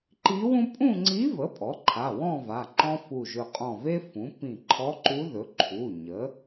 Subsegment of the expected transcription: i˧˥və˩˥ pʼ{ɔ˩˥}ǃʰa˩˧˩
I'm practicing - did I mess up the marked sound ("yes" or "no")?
no